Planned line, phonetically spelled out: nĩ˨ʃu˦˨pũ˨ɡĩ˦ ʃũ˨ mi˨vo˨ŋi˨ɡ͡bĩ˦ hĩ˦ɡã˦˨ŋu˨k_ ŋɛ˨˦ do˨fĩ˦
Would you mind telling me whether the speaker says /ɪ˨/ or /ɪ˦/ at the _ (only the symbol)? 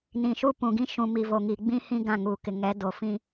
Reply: ɪ˨